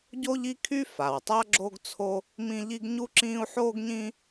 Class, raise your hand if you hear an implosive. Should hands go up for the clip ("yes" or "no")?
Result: no